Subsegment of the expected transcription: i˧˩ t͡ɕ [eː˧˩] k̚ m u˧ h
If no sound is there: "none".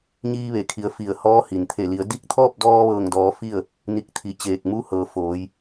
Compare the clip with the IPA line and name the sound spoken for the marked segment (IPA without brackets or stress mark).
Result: eː˧˩